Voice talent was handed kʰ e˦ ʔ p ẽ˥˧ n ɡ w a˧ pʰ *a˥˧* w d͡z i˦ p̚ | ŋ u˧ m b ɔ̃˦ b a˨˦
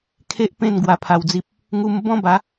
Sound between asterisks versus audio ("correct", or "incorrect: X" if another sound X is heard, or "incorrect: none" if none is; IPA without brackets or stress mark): incorrect: a˧